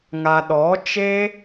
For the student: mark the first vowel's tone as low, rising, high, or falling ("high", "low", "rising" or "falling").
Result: low